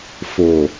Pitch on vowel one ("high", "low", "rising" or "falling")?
low